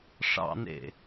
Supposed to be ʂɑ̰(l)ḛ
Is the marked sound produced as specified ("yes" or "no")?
no